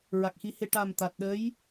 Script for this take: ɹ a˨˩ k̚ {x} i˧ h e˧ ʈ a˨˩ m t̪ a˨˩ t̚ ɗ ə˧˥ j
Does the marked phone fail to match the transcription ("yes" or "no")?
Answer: no